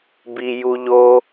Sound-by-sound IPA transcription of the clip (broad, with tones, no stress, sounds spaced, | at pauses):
b i˧ j u˧ ʎ o˦